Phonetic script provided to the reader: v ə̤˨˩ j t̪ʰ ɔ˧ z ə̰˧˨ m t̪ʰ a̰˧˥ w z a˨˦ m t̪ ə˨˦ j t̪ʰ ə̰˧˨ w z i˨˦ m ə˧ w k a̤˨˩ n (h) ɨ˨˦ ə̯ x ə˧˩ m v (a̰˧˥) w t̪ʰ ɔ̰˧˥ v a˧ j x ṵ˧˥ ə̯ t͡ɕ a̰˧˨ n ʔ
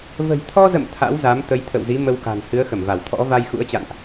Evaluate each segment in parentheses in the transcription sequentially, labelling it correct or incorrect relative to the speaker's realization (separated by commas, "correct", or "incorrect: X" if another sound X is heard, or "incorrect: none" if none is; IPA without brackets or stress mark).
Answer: correct, incorrect: a˧˩